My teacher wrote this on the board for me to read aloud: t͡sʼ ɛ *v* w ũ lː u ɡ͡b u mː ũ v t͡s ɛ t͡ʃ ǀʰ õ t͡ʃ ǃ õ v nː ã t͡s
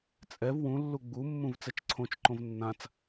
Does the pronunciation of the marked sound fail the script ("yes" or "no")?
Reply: no